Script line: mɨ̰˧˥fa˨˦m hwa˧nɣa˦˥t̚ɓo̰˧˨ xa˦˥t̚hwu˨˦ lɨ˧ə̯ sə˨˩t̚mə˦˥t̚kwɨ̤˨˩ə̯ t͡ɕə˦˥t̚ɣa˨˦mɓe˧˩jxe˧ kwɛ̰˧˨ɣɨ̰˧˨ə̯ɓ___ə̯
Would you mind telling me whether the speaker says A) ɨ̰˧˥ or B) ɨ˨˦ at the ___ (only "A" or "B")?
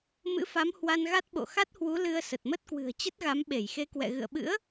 A